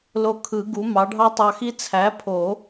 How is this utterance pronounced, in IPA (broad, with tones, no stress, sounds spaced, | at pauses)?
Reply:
l o˧ kʰ ɯ˨˩˦ ɡ u˩˥ m ɑ˩˥ ɖʱ ɑ˥ tˤ ɑ˧ x i˥ t͡sʰ æ˩˥ pʰ o˨˩˦